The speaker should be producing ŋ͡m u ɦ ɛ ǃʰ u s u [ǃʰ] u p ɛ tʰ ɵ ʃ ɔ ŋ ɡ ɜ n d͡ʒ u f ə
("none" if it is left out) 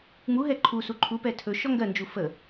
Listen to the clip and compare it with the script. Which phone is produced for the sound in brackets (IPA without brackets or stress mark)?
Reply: ǃʰ